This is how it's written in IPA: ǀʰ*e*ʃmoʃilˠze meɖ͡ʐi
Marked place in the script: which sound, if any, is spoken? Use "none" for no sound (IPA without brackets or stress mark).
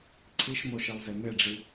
i